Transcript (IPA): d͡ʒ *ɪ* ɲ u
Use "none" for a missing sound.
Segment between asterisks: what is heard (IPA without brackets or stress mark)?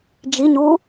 i